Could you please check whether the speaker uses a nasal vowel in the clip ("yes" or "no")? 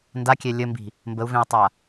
yes